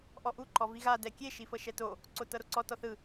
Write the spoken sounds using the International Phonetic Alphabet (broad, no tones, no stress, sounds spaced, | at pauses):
ʔ ɔ ʔ u ǃ ɔ v i ɣ a d ɛ kʲ e ʃ i f ɤ ʃ ɛ t o | ǀ o t ɤ ɾ o ǀ ɔ t ɔ θ ɯ